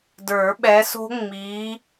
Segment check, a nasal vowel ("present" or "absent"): absent